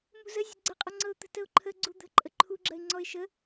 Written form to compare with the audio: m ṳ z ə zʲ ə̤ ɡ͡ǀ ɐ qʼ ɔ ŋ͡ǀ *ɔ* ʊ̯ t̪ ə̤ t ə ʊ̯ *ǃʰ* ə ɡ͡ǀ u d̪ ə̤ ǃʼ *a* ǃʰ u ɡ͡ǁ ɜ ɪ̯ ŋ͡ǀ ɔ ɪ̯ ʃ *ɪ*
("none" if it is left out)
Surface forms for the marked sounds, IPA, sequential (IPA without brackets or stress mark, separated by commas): ɤ, ǃʰ, ə, ə